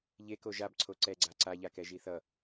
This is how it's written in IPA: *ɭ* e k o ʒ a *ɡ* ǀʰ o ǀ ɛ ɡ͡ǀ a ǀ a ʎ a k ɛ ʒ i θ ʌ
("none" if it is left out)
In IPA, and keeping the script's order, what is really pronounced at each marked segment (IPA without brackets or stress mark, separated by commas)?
ʎ, b